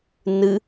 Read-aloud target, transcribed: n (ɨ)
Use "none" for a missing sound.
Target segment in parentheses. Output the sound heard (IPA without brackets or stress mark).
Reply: ɨ